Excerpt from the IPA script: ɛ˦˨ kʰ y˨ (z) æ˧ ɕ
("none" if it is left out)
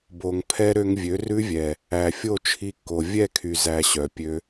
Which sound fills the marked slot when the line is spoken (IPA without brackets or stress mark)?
z